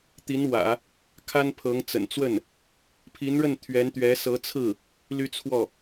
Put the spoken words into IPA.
t̪ i˧˥ n w ä̰˨˩˦ | kʰ a˥ n pʰ ɤ˧˥ ŋ t͡s ə̰˨˩ n t͡s w ə˥˩ n | pʰ i˧˥ n ɻ ə˥˩ n t̪ʰ ɥ ɛ˧˥ n t̪ ɥ ɛ˧˥ s ɤ˧˥ t͡sʰ ɹ̩˥˩ | l y˥ t͡sʰ w ɔ˥˩

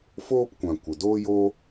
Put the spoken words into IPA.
f oː˦ p kʷ ã˨ kʷ ə˨ d oː˦ j o˦

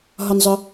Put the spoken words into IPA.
ɦ ɒ˩ n zˤ œ˩

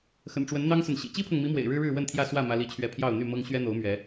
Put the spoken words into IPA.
x ə̰˨˩ n ʈ͡ʂ w ə˨˦ n n̪ ɑ˦ ŋ s ə˨ n ɕ ḭ˨˩ t͡ɕ i˦ pʰ ɤ˨ ŋ m i˨˦ m w ḛ˨˩ ɪ̯ ɻ ɻ̩˦ ɻ ɻ̩˥˨ w ə˥˨ n t̪ʰ j ä˥˨ s w ä˥˨ m ä˦ l i˥˨ t͡ɕʰ ɥ ɛ˥˨ pʰ j ɑ˥˨ ʊ̯ n̪ y˥˨ m ɤ˦ ŋ ɕ ɥ ɛ˦ n̪ o˨˦ ʊ̯ m ɥ ɛ˨˦

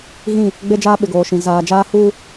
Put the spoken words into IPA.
ɣ ĩ˦˨ | ɡ͡b e˦ d͡ʒ aː˦ ɓ ɪ˨ ɡ oː˨ ʃ ĩ˨ z aː˨ d͡ʒ aː˦ h uː˦

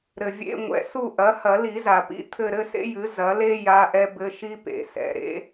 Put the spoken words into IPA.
ɾ ɘ˩ vʲ ḛ˧˥˧ ŋʷ ɛ̰˩˥ s u˦˨ ʔ ɐ˩˥ h ɐ˨˩˦ l i˨˩˦ z a˩ p ḭ˧˥˧ t̪ʰ ɘ˦˨ ɾ ɘ˥ s ḛ˥ j ɨ˩˥ z ɐ˩˥ l e˥ j a˧˥˧ ʔ ɛ˥ b ɘ˧˥˧ ʃ i˥ p ḛ˩ s ɛ̰˩ ɾ ḛ˥

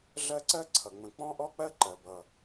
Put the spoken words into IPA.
ɮ ɜ˦ ǀ ɜ˥ ǀʰ ʌ˩ ŋ͡m ə̃˨ k͡p ɔ̃˥ ʔ ɔ˥ k͡p ɜ˥ ǃ ɜ˩ b ʌ˩

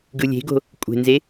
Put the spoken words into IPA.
ɡ ɯ lʲ e̤ ɡ o̤ | kʷʼ e̤ n z e

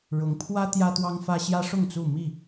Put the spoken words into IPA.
ɻ ʊ˨˦ ŋ pʰ w ä˦ t̪ j ä˦ t̪ w ɑ˦ ŋ f ä˦ ɕ j ä˦ ʂ ʊ˥˨ ŋ t͡s u˥˨ m i˥˨

